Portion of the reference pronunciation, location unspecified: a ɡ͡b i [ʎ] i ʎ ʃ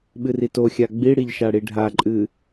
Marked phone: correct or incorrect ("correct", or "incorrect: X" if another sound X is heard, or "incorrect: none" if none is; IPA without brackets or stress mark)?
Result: incorrect: ɽ